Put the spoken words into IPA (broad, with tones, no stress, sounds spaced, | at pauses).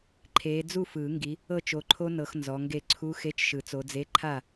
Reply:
ǃʰ eː˨˦ d͡z u˥˨ f ɯː˨˩˦ ŋ ɡ i˨˦ | ɤ˥˨ t͡ʃ o˨˦ ǃʰ o˦˥ n ɤ˨˦ x n z ɔ˨˦ ŋ ɡ e˥˨ ǀʰ u˧˥˧ x e˧˥˧ t͡ʃ ʃ ɯ˨˩˦ t͡s o˨˦ d͡z e˧˥˧ ǃʰ a˥˨